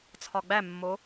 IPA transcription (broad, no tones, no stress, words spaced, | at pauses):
t͡sʰɒɡ͡bæmːo